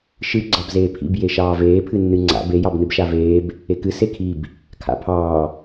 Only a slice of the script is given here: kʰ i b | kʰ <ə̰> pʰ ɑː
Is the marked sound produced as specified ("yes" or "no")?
no